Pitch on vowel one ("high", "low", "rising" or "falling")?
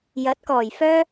rising